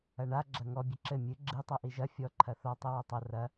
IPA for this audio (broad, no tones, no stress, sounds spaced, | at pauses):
ɐ ɳ a ɡ͡ǁ ɐ ŋ ɔ bʲ ɘ ǁ ɘ mʲ ɨ ɡ͡ǁ ɨ tˤ ɛ ʔ i ʒ ɐ fʲ ɔ ǃʰ ɐ θ ɔ tˤ i w ɐ tˤ ɐ r ɐ